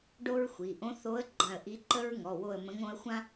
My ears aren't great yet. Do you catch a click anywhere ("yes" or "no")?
yes